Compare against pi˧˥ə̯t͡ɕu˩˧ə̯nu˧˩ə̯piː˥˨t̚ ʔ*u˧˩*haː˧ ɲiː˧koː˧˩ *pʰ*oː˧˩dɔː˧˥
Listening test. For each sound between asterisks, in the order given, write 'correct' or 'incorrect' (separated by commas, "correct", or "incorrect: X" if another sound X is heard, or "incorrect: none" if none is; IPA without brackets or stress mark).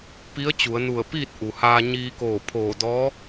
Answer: incorrect: u˩, correct